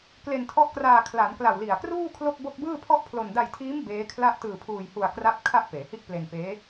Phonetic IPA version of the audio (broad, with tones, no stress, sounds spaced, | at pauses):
k l e˧ n tʰ ɔ˦˥ ʔ k r aː˧ kʰ l a˩˦ n k l a˨˩ w l i˨˩ a̯ k r uː˥˩ kʰ l o˥˩ k̚ b o˥˩ k̚ b ɯː˥˩ pʰ ɔ˥˩ ʔ pʰ l o˧ n d a˧ j tʰ iː˦˥ m b eː˦˥ kʰ l a˥˩ ʔ t ɯː˧ pʰ uː˧ j h u˧ a̯ k r a˥˩ p̚ kʰ a˥˩ ʔ p eː˩˦ h i˥˩ ʔ p l e˧ n p eː˦˥